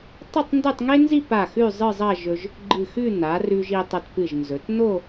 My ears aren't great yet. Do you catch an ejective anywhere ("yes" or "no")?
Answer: no